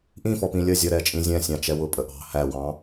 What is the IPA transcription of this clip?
ʔ ĩ f ɔ p ĩ lʲ ə zʲ ʌ ɾ ɛ t͡ʃʼ ĩ zʲ ɛ̃ sʲ ɑ̃ t͡ʃ ɛ w ʊ pʼ ə ʔ ɑ̤ h æ w ɑ̃

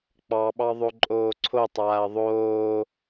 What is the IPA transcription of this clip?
k͡p ɑ ɓ ɑ ðˤ o ǃʼ oː ǀʰ o tˤ aː ɐ̯ ðˤ oː

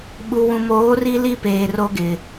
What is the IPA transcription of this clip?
ɓ u˨ w ũ˨ m oː˨˦ r i˦ l i˦ p eː˨ r o˦ ɡ ɪ˨

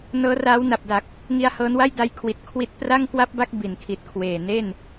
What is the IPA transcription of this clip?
n ɤː˦˥ r aː˦˥ w n a˨˩ p̚ d a˨˩ k̚ | ŋ i˧ a̯ h ɤː˦˥ n w a˥˩ j d a˦˥ j kʰ w i˨˩ t̚ kʰ w i˦˥ t̚ p r a˥˩ ŋ k w a˥˩ p̚ b a˥˩ k̚ b i˩˦ n kʰ i˨˩ t̚ kʰ w eː˨˩ n e˥˩ n

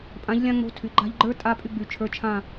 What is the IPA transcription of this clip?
pʼ ã˨˦ ʎ lʲ ã˥ ŋ͡m o̤˧˥˧ tʰ y˩˧˩ ɡ͡ǃ a̤˥˧ ʎ ɡ͡ǃ ə˞˥ tʼ a˧˥˧ pʼ y˥˧ ɡ͡b y˩˧˩ t͡ʃʰ ə˞˧˥˧ t͡ʃʰ ã˥˧

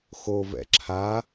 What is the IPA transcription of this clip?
x o v ɛ̰ ǁʰ a

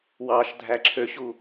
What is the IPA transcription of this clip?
w ɑ ʃ dʱ æ ǁʰ ø ɕ u

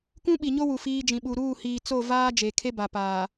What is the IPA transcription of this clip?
k ũ˦ ɓ i˨ ɲ o˦ w u˨ f iː˦ d͡ʒ ĩ˨ ɓ u˨ ɾ uː˦˨ h iː˨ t͡s o˦˨ v aː˦ d͡ʒ e˨ kʰ e˦ b a˨ p aː˨

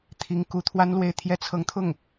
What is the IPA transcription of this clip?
t̪ʰ i˧˥ ŋ k u˧˥ t̪ʰ w a˥ n l w e˥˧ ɪ̯ t̪ʰ j ɛ˥˩ t͡sʰ ɤ˧˥ ŋ t̪ʰ ʊ˥˩ ŋ

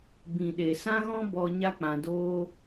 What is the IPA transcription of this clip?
b ĩ˨ ɗ e˨ s ã˦ ɣ ɔ̃˦ b ɔ˧ ɲ a˦ k͡p ã˧ d oː˦

